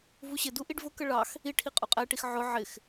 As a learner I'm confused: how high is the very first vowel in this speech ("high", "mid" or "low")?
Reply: high